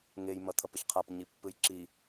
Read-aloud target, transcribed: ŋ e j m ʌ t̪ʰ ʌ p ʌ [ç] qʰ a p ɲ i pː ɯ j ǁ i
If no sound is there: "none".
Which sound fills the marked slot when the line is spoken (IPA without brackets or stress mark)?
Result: ç